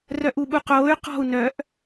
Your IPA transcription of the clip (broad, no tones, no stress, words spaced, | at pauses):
rœʔuɓuqoːy̯ qɔ̤u̯ nœʔ